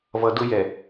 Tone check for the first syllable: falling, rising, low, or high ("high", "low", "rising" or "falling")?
low